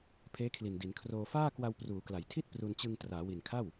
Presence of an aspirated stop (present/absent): present